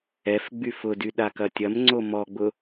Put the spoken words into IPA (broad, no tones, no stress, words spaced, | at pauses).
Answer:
ɛf ɡ͡byfʊdy ɗakɐtʲɐmŋ͡ǀo mɔɡ͡bʊ